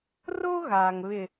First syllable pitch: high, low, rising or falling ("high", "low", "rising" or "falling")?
high